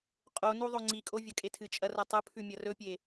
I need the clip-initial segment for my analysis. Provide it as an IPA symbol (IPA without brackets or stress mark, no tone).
qʼ